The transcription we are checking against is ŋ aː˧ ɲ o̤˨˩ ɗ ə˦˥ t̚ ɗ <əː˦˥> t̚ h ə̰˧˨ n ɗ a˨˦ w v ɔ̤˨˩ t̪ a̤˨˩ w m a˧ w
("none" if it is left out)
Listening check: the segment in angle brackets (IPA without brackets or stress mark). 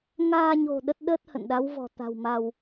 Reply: əː˦˥